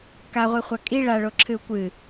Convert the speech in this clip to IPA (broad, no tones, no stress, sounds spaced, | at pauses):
k a ʁʷ i χʷ a kʼ i ɭ a ɭ o ǁʰ ɨ u̯ kʷ ɨ